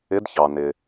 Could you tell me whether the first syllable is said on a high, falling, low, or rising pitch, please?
rising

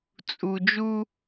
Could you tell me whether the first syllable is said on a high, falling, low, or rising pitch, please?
low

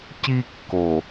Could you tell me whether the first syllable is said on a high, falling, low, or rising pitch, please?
high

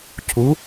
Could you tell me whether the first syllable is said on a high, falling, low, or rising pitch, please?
rising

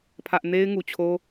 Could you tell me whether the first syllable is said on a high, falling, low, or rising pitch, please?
high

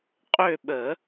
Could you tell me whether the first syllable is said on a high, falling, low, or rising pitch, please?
falling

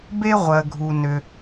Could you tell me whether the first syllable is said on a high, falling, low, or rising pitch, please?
high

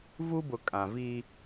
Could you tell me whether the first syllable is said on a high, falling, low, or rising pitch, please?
high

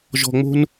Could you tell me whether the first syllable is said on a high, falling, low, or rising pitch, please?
low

